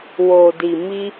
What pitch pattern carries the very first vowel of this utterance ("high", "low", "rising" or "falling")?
low